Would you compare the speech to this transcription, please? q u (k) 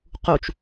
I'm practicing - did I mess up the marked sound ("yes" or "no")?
yes